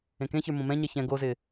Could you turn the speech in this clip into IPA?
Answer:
ẽ k ẽ ç ə˞ m õ m ɛ̃ ɲ ɛ ç ɛ̃ ɡ o z ɪː

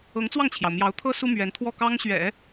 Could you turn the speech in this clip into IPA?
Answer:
ɤ˧˥ ŋ t͡s w ɑ˥˩ ŋ t͡ɕʰ j ɑ˩ ʊ̯ m j ɑ˧˥ ʊ̯ t̪ʰ ɤ˥ s u˥ m ɥ ɛ˧˥ n t̪ʰ w ɔ˥˩ k ɑ˥ ŋ ɕ ɥ ɛ̰˨˩˦

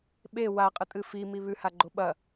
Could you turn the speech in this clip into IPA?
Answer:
ɓ e w a qʼ ɨ tʼ ɨ f i m i β ʉ h a ɡ͡ǃ o ɓ ɐ

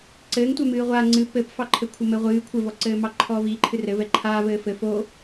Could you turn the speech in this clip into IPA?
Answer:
ǀ ɘː ŋ tʷ ɛ m ɨː ʁʷ aː ŋ͡ǀ ɨ p ɘ p f ɑ ǃʰ ɘ kʷʰ ɘ m ɘ ʁʷ ɨː kʷʰ ɘ v ɔ ǀ ɘː m ɑ ǃʰ ɔː v iː ǃʰ ɨ r ɘ v ɛ ǃʰ aː v ɘː f ɘ f o

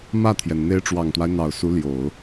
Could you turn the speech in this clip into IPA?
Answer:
m ä˥˩ t̪ʰ j ɛ˩ n n̪ e˧˥ ɪ̯ ʈ͡ʂ w ɑ˨˩ ŋ t̪ w a˦ ɪ̯ n̪ ɑ˨˩ ʊ̯ s u˧˥ l j o˨˩˦ ʊ̯

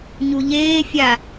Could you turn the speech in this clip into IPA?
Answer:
ɲ u ʎ eː fʲ a

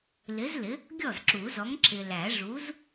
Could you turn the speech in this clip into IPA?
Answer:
l ɪ˨˥ z l ɪ˨˥ | ɡʲ ɔ˥˩ z ǁ u˨˩˦ z ɔ˨˥ ŋ ǁ ɪ˨ l æ˨˩˦ ʐ u˨˥ z

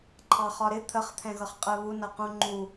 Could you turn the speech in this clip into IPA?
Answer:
ǃʰ ɑ χ ɒ ɾ ɪ t̪ʰ ə χ t̪ʰ ɛ̃ ɣ ʌ χ qʼ ɜ β u n ʌ q ũ ŋ͡ǃ u

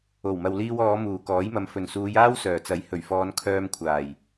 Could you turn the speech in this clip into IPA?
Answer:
o˨˩ w m ɐ˨ w l iː˧ w ɔː˨˧ m uː˨˩ k ɔː˨˥ j m ɐ˨ m f ɵ˨˩ n s uː˨˧ j aː˥ w s œː˨˩ t͡s ɐ˨˥ j h ɵ˨˩ ɥ f ɔː˨˧ n kʰ œː˧ m kʷʰ aː˨˩ j

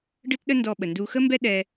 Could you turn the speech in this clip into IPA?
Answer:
ɖ ɯ˦ t ɗ ə˦ n d ɔ˧ ɓ ə˨ n d u˧ x ə˦ m b ɛ˦ ɗ ɛ˧

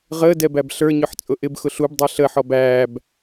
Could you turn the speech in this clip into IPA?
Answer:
ʁ əː d ɛ b æ b ɬ ə˞ ɲ ʊ ħ t͡sʼ ʊ ʔ ɪ b x ʊ ɬ u b dˤ ɛ ɬ əː ħ ɔ b æː b

